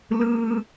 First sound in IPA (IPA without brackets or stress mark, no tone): l